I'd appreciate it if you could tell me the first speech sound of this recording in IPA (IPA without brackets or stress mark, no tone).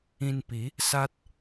ĩ